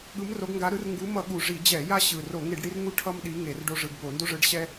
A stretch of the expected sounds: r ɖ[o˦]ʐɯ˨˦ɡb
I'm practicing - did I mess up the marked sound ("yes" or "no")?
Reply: no